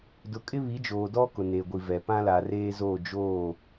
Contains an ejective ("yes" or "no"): yes